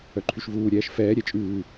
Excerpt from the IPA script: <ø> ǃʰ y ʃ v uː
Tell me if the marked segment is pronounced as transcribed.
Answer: no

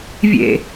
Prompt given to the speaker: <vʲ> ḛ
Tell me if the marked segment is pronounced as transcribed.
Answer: yes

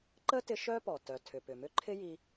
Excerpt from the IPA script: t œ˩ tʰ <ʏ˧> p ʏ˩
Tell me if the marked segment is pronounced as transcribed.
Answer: no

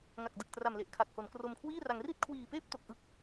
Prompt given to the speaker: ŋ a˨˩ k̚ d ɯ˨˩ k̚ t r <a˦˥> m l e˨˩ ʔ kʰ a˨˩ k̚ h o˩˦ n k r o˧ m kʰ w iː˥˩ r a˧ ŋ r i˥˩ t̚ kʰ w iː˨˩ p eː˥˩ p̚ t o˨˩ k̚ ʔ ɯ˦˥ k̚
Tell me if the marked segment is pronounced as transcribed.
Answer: no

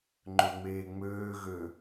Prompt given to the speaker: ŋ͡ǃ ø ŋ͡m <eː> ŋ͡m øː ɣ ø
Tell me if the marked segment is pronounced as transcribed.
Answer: yes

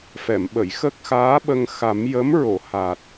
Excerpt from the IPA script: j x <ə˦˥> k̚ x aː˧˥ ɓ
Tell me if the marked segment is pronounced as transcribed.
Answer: yes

